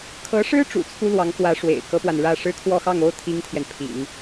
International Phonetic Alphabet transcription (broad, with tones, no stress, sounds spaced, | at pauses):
kʰ ɤ˧˥ ʂ ɻ̩˥ ʈ͡ʂ ṵ˨˩ t͡sʰ u˥ l w ɑ˧˥ ŋ k w ä˧˥ ʂ w ḛ˨˩ ɪ̯ k ɤ˥ p w a˨ n ɻ ä˥˩ ʂ ɻ̩˥ kʰ w ɔ˥˧ x ɑ˥˩ ŋ o˥ ʊ̯ t̪ʰ i˥ ŋ t̪ʰ j ɛ˨ n pʰ ḭ˨˩˦ ŋ